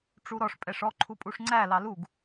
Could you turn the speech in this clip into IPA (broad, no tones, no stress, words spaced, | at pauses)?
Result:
ʈ͡ʂuɾɔʂ pʼɛʂɔ ǃʰupʼuʂŋ͡ǀæ lɑluɡ